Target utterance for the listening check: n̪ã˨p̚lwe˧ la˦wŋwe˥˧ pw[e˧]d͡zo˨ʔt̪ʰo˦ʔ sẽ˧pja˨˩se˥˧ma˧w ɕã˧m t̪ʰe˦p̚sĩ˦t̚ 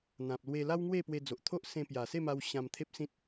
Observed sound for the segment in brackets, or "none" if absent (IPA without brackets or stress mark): e˧